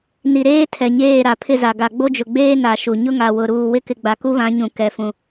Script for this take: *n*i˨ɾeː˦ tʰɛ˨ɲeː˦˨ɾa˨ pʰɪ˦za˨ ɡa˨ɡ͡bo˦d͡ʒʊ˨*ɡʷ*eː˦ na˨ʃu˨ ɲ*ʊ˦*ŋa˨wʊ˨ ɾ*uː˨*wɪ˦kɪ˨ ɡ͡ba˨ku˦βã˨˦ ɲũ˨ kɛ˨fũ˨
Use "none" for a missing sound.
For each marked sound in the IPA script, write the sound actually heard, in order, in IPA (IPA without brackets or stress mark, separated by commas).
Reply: n, ɡ͡b, ʊ˦, uː˨